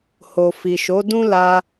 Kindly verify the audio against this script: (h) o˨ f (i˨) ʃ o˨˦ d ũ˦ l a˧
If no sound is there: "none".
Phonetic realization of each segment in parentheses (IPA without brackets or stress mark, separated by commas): h, i˨